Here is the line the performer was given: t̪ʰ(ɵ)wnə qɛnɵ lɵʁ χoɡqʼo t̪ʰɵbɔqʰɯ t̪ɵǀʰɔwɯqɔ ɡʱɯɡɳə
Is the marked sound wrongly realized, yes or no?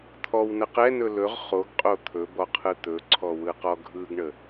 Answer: yes